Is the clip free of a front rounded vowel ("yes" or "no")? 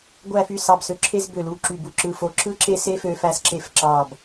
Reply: no